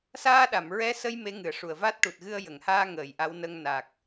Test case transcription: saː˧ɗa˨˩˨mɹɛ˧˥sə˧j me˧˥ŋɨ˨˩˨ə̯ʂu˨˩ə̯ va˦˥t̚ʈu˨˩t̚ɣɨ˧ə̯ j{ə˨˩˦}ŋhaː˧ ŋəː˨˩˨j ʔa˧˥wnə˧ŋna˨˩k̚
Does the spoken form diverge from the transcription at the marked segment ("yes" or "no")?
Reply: yes